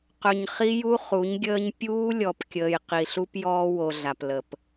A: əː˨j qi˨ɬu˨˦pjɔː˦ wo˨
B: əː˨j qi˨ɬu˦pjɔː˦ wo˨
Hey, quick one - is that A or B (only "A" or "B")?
B